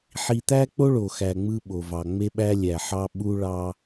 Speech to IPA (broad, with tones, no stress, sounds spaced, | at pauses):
ħ i˨ t̪ æ˦ k͡p o˦ ɭ o˨ x æ˨ ŋ͡m ɯ˦ ɓ o˨ v ɑ˨ ŋ͡m e˦ ɓ æ˦ lʲ æ˨ ħ ɑ˦ ɓ u˦ ɭ ɑ˦